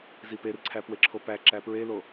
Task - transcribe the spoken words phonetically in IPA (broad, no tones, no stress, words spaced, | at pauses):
ziperǀʰæ pweǁʰopæ ǁæpɹelo